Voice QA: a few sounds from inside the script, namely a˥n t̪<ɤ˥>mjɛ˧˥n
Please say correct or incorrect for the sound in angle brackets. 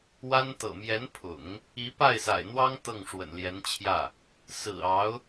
incorrect